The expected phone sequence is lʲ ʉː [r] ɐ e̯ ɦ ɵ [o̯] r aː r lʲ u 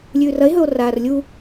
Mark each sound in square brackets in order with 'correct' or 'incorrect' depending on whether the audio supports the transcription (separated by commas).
correct, correct